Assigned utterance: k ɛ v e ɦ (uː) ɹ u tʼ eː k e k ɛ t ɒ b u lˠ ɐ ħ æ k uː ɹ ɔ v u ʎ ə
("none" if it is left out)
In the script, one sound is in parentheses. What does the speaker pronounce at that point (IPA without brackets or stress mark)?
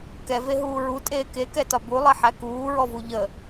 uː